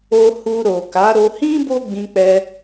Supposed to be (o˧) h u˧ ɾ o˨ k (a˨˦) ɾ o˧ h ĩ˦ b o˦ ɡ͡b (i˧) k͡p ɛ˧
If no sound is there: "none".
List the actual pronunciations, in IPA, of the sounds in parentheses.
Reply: o˧, a˨˦, ĩ˧

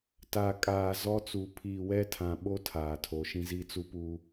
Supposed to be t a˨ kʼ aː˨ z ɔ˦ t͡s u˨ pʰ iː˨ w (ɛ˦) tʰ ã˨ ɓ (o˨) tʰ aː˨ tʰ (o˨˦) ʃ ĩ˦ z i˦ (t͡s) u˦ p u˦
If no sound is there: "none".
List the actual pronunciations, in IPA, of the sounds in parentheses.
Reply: ɛ˦, o˦, o˨˦, t͡s

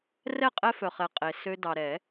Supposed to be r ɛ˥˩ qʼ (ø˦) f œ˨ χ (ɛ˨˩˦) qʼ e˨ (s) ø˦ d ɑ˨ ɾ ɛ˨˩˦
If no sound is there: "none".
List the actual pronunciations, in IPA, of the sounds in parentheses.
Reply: ɛ˦, ɛ˨, s

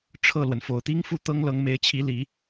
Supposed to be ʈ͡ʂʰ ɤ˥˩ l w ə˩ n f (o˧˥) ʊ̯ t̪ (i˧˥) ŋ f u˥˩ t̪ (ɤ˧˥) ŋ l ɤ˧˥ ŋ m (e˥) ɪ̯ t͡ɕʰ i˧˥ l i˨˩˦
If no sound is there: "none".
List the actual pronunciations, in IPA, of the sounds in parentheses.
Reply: o˨˩, i˥, ɤ˥, e˧˥

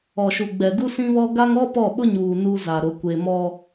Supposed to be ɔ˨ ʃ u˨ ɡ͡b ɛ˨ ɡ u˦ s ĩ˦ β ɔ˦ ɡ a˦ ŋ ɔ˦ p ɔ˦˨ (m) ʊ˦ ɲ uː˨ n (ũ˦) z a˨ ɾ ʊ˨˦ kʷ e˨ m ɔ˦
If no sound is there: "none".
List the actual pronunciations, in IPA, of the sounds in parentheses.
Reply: ɓ, u˦

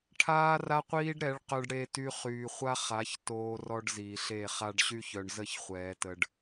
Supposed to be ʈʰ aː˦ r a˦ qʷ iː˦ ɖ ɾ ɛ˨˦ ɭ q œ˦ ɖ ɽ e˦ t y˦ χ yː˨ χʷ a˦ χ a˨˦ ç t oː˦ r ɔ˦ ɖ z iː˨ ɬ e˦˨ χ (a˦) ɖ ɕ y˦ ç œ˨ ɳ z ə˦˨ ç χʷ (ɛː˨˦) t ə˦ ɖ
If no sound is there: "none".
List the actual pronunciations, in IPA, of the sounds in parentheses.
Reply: a˦, ɛː˨˦

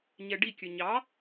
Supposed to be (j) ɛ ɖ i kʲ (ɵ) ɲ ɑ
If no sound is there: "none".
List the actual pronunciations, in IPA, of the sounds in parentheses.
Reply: ɲ, ɵ

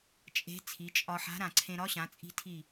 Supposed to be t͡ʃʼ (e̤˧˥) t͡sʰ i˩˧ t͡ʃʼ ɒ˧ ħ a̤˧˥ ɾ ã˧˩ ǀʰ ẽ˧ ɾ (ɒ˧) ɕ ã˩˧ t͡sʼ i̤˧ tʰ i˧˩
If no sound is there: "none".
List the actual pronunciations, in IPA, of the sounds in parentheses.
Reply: e̤˧˥, ɒ˧˥

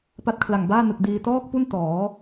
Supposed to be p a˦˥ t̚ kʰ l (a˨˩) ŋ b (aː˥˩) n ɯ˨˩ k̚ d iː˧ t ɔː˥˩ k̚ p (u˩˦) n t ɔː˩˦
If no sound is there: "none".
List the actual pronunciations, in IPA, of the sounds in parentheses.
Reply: a˨˩, aː˥˩, u˥˩

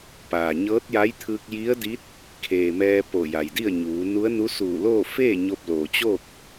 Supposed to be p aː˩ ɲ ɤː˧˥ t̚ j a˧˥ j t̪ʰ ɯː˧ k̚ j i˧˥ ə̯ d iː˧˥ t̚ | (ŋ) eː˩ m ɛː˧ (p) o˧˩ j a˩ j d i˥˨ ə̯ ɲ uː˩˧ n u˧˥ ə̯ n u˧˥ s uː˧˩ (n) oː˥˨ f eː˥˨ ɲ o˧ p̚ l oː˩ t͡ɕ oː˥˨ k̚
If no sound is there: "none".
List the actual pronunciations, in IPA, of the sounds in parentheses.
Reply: kʰ, p, l

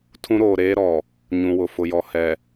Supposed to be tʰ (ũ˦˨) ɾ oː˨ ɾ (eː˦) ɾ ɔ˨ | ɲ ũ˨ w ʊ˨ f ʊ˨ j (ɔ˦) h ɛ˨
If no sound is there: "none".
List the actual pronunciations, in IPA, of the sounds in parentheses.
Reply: ũ˦, eː˦, ɔ˨

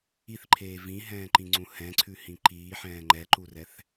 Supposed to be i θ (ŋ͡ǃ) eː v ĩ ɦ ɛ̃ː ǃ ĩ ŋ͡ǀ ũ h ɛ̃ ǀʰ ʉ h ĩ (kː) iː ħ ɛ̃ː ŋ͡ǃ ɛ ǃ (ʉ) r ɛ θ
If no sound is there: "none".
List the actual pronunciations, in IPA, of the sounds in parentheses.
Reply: ǃʰ, ǃ, u

